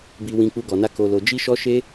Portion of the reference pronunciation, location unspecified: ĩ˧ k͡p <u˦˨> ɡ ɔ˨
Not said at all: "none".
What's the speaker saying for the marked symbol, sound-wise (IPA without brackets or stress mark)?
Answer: u˧